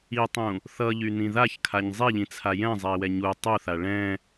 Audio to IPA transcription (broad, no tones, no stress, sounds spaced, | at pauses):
i tˤ ũ | θ ʌ ʎ y n ĩ ð a ç kʰ a ɲ zˤ i ʎ ĩ t͡sʰ a j ɛ̃ zˤ ɛ i̯ w ɛ ɲ u tˤ u θ a ɭ ɛ̃